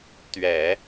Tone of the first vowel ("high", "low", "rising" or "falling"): low